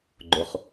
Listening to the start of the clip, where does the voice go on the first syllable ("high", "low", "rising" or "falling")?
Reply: low